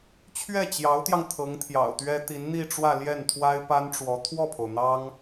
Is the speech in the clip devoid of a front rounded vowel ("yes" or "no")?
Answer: yes